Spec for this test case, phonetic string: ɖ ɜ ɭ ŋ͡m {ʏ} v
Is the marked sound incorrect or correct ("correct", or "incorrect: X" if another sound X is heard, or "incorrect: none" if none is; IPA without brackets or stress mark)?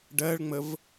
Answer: incorrect: ə